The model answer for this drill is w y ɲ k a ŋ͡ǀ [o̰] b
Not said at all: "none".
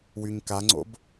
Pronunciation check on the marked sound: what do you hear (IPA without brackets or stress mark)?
o̰